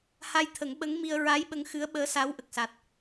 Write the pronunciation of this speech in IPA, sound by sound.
h a˧ j t̪ʰ ə˨˩˦ ŋ ɓ ə˧˥ ŋ m i˧ ə̯ ɹ a˧˥ j ɓ ə˧˥ ŋ x ɨ˧˥ ə̯ ɓ əː˧˥ s a˧˥ w ʔ ə˨˩ k̚ s a˨˩ t̚

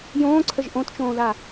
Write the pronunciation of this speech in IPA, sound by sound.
j õː ǀʰ ə ʒ ʔ õ t t͡ʃ õː ð a

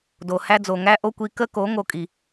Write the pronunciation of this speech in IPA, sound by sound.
d o˨ h æ˦ d͡z o˨ ŋ æ˦ ʔ o˦ kʷ i˧ k ə˦ k o˨˦ ŋ o˧ kʼ i˨

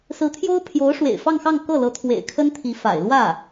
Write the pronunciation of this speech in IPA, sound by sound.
s ɹ̩˧˥ t̪ʰ j o˥ ʊ̯ pʰ j o˧˥ ʊ̯ ʂ w ḛ˨˩ ɪ̯ f ɑ˥˧ ŋ x ɑ˥˧ ŋ k ɤ˥˩ l ɤ˧˥ t̪ʰ w ḛ˨˩ ɪ̯ kʰ ə˥ n t̪ʰ i˧˥ f a̰˨˩ ɪ̯ l w ä˥˩

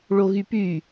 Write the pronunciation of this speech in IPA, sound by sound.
ɭ o ɣ y p y

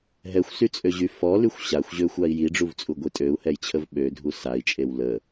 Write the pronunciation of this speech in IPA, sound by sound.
ɦ ɛ xʷ s y t͡sʼ ø ʑ y f ɔ l y xʷ ɕ a xʷ ʑ ø xʷ a i̯ j i ɖ͡ʐ u v t͡sʼ u ɡʷ i tʼ ø u̯ h ɛ j t͡ɕʰ ə v ɓ ø dʱ u s a i̯ t͡ʃʼ e w l ə

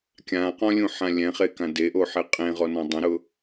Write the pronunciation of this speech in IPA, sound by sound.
kʲ ã q ɔ̃ lʲ ũ ħ ã lʲ ɛ̃ χ e k ã d e ʔ o ħ e qʼ ẽ ʁ ɔ n ɔ̃ dˤ ɛ̃ ɾ ʊ

